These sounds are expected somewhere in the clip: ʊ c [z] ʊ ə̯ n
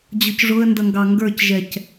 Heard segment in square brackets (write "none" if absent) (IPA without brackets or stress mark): ʐ